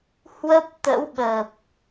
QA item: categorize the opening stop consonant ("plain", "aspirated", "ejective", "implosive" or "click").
plain